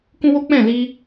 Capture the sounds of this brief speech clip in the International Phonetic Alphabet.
k ũ˦ w o˦ k͡p ɛ̃˦˨ l i˧

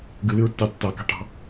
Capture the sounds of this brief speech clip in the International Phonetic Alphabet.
ɡ ɨ l ɨ ɹ tː ɑ tː ɑ k ɑ̤ ʈ ɑ̤

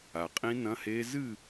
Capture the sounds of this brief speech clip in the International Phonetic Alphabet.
a˩ qʼ ĩ˦˥ n ɐ̃˧˥˧ h e˦˥ z ɨ˥˨

